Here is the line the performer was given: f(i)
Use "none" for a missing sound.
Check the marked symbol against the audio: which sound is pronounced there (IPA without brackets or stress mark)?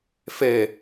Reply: e